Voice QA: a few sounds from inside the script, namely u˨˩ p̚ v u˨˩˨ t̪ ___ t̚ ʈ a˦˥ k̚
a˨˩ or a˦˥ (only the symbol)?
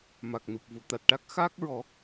a˨˩